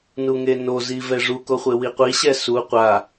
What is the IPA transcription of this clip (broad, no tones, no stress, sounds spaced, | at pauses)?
n u ŋ e n o z i v ɛ ʐ u k o χʷ e w i qʷ i ɕ ɛ s u qʷ a